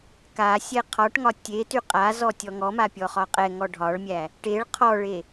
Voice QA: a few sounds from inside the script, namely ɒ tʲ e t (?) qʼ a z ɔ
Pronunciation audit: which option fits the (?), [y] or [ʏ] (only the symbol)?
y